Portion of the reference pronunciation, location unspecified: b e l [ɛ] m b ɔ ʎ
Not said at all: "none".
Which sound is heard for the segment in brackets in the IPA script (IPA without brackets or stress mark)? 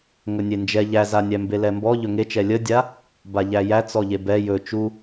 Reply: ɛ